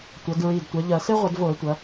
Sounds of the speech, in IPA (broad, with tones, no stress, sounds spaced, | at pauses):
tʷ ɐ˩˧ d ɹ i˨˩ d tʷ ɐ˩˧ ʎ ɐ˧˩˧ s e˥ ʁʷ ɐ˧˩˧ d v o˧˩˧ ə̯ tʷ ɐ˩˧